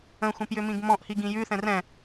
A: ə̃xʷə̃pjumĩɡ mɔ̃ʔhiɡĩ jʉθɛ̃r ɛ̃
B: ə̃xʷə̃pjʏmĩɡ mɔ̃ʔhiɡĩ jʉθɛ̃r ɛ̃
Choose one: B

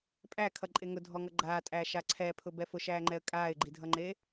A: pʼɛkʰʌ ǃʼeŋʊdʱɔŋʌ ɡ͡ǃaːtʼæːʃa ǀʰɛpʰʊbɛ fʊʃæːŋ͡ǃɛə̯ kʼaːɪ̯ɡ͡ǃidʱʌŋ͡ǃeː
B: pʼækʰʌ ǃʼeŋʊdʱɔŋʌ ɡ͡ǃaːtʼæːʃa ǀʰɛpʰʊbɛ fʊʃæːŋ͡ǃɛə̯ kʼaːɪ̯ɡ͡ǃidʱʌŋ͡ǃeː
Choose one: B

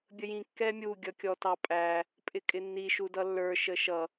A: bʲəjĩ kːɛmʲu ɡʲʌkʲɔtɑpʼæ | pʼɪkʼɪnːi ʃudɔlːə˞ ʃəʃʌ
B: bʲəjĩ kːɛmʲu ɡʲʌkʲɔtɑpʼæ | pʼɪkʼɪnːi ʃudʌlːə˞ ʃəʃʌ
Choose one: B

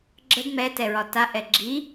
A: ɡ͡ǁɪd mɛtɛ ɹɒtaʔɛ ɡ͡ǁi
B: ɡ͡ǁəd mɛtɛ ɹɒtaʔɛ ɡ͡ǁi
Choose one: B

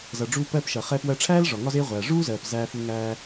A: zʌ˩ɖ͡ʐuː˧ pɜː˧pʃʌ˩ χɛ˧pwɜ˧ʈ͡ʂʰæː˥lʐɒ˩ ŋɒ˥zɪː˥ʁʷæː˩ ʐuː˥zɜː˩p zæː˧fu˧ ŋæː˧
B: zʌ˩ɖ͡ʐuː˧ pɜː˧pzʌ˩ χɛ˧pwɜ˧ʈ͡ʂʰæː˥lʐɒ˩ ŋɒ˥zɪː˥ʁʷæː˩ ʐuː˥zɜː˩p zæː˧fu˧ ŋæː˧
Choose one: A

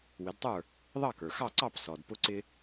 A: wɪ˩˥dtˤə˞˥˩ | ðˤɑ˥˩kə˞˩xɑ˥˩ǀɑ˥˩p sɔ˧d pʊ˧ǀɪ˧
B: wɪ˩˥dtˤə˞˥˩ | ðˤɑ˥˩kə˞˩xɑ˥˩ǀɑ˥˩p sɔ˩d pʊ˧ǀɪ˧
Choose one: B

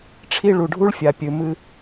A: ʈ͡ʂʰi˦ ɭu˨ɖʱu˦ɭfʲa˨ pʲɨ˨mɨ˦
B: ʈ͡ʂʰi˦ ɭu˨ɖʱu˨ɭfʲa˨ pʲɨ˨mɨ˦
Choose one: A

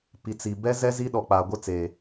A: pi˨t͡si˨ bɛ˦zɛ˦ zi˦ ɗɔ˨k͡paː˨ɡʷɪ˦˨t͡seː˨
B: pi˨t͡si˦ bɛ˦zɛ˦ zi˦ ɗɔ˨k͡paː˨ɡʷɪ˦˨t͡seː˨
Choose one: A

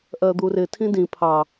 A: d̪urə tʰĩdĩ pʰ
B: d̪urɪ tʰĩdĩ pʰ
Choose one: B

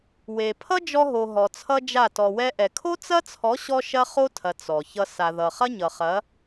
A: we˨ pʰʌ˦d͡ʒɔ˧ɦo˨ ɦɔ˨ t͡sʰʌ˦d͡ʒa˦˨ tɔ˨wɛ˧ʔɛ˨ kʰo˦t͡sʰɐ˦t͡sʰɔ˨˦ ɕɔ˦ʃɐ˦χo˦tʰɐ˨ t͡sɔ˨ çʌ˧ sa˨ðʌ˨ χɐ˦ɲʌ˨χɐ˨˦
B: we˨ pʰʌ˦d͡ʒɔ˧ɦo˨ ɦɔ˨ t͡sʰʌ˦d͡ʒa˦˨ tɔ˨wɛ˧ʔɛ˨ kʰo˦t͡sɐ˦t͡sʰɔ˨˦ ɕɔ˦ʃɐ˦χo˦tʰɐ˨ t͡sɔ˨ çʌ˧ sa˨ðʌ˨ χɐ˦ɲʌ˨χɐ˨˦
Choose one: B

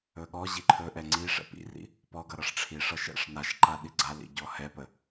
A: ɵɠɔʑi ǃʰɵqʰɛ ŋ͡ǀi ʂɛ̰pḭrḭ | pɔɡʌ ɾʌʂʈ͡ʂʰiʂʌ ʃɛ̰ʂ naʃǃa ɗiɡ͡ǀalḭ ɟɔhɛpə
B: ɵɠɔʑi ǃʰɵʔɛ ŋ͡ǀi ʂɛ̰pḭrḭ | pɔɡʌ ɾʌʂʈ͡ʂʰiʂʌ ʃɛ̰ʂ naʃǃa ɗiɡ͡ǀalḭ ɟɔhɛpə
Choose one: B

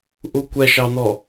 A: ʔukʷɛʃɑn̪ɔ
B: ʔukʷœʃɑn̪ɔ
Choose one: A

